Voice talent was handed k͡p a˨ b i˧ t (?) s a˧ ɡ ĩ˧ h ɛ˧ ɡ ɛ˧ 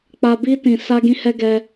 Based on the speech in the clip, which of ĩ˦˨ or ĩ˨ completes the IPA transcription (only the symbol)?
ĩ˨